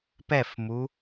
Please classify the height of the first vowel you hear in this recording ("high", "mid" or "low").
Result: mid